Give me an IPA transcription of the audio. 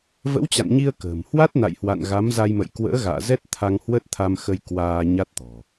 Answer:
v ə̰˧˥ w t͡ɕ a̰˧˨ n ɲ i˧ ə̯ k ə̤ː˨˩ m h w a˦˥ t̚ n a̰˧˨ j h w a̰˧˨ n ɣ a˨˦ m z a˧ j m ə̰˧˨ j k w ə̰ː˧˥ ɣ a̰ː˧˨ z ɛ˦˥ t̚ t̪ʰ a˧ ŋ h w ə˦˥ t̚ t̪ʰ a˧ m x ə˧ j k w aː˧ ɲ a˦˥ t̚ t̪ ɔ̤˨˩

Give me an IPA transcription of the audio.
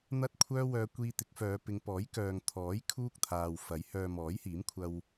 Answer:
n̪ ɐ˥ t̚ kʷʰ œː˥ w œː˧ kʷ iː˧ t̪ ɪ˨˥ k̚ f œː˨˧ p ɪ˨˧ ŋ p ɔː˨˥ j k œː˨ ŋ t̪ʰ ɔː˨˥ j kʰ uː˥ k̚ t̪ʰ aː˨ w f ɐ˨˥ j h œː˧ m ɔː˨˥ j h iː˨˥ m kʷʰ ɐ˧ w

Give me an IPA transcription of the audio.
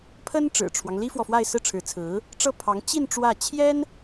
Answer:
pʰ ə˥ n ʈ͡ʂ ɻ̩˨˩ ʈ͡ʂʰ w ɑ˦ ŋ l i˥ f w ɔ˨ f w a˥˧ ɪ̯ s ɹ̩˥˩ ʈ͡ʂʰ ɻ̩˧˥ t͡sʰ ɹ̩˧˥ | ʈ͡ʂ ɤ˥˩ pʰ ɑ˧˥ ŋ t͡ɕ i˥˧ n ʈ͡ʂ w ä˥˩ t͡ɕʰ j ɛ˥ n

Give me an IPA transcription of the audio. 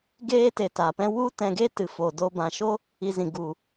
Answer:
ɡ eː˦ t e˨ t a˨ p ɛ̃˦ w u˦ t ɛ̃˧ ɡ e˦ t ɨ˨ f o˨ d o˧ b ã˨ ʃ o˦ | i˧ z ĩ˨ ɡ u˨

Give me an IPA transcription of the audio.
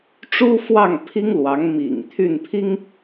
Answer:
ʈ͡ʂ u˥ f w ɑ˥˩ ŋ pʰ i˥ ŋ l w ɑ˧˥ ŋ m ḭ˨˩ ŋ t̪ʰ y˥˩ n pʰ i˥ ŋ

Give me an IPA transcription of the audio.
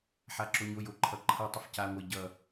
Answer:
ħ a ǁ o ɲ o j o ǃʰ ʌ ǃʰ ʌ tˤ ə f c a ŋʷ ə j ɟ ʌ

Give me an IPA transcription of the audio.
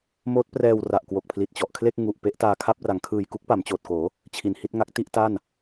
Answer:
m oː˦˥ t̚ p r ɛː˧ w r a˨˩ ʔ k w o˨˩ k̚ pʰ l i˨˩ t̚ t͡ɕ ɔ˨˩ ʔ kʰ l e˥˩ k̚ ŋ u˨˩ ʔ p e˦˥ ʔ t aː˧ kʰ a˥˩ p̚ r a˩˦ ŋ kʰ ɯː˨˩ j k u˦˥ k̚ p a˩˦ m t͡ɕ oː˨˩ t̚ k oː˩˦ | t͡ɕʰ i˨˩ n h i˥˩ t̚ ŋ a˦˥ k̚ t i˥˩ ʔ t a˥˩ n

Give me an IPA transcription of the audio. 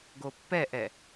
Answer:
ɡ o pː ɛ ʔ ɛ

